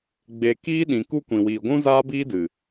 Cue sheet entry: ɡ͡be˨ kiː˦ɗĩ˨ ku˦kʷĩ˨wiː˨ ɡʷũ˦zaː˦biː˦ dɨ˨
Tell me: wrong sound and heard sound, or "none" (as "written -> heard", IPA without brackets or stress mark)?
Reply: none